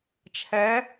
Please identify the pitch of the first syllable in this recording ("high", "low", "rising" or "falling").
rising